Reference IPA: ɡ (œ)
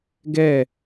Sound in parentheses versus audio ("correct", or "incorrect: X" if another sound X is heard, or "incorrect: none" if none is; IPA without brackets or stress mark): incorrect: ɛ